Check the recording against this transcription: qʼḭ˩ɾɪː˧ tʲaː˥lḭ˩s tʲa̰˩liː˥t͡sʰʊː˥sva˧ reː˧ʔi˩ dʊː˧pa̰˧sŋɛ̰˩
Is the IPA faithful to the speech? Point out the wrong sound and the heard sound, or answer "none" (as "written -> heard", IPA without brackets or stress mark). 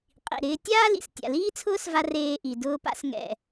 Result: none